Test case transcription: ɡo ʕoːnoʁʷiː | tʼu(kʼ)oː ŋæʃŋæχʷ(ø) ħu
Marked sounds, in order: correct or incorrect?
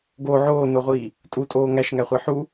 incorrect, incorrect

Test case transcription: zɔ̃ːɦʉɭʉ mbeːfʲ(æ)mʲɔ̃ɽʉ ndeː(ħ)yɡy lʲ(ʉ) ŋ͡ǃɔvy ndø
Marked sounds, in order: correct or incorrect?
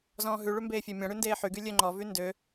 correct, correct, incorrect

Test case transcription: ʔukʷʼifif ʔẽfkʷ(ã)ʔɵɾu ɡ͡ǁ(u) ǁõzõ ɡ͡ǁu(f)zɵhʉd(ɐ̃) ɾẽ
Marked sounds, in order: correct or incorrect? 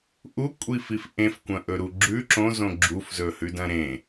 incorrect, incorrect, correct, correct

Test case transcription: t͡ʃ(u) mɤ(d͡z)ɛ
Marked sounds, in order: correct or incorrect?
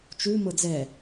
correct, correct

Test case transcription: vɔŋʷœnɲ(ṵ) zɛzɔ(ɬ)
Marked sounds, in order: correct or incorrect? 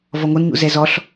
correct, correct

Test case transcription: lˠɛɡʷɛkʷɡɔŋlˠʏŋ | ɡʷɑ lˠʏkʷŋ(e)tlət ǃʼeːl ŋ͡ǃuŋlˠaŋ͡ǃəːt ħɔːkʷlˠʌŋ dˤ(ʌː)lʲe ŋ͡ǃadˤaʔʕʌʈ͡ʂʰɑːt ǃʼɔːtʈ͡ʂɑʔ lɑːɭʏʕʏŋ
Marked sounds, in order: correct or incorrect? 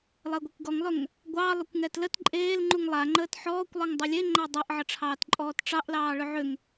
incorrect, incorrect

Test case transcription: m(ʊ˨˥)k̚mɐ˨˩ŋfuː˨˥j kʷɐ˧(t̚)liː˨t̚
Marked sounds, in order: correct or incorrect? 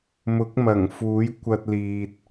correct, correct

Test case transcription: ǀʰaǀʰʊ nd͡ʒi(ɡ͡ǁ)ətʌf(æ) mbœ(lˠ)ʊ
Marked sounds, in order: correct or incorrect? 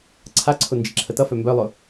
incorrect, incorrect, correct

